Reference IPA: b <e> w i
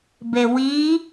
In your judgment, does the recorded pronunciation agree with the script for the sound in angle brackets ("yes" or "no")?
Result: yes